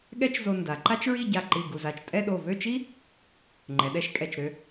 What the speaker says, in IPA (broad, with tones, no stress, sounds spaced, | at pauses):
ɠ ɛ˥ t͡ʃ z o˧ n d a˩˧ ǃ a˥ t͡ʃ ɹ i˥˧ ɟ a˧˩ ǃ i˧˩ ɡ u˧˩ z a˧˩ t͡ʃ tʼ ɛ˥˧ ɗ o˧˩ v ø˥˧ t͡ʃ i˥ | ŋ͡ǃ ɛ˩˧ ɗ ɛ˧ ʃ kʼ ɛ˧˩ t͡ʃ ɾ ø˧